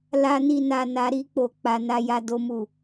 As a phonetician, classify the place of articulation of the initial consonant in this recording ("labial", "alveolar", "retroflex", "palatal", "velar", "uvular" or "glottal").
alveolar